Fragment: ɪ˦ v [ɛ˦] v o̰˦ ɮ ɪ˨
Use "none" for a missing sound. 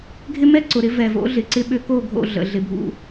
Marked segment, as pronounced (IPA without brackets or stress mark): ɛ˨